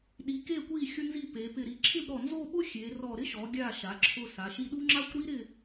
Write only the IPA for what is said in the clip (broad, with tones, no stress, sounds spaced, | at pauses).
ɗ i˩˧ k e˧˩ kʷ i˧˩ xʲ ʊ˧ n z i˧˩ p e˩˧ p ɪ˧˩ ɾ i˧˩ ǁʰ ɪ˥˧ b ɾ ɔ˧˩ n z o˥˧ ɓ ʊ˥ xʲ e˩˧ r ɔ˧˩ ɾ ɪ˥ ʃ ɔ˩˧ ɡʲ a˧˩ ʃ a˩˧ ǁʰ ʊ˧˩ s a˩˧ ʃ i˧ ɗ u˥ ŋ͡ǁ a˥ kʷ ɾ i˥ ɾ ɪ˥˧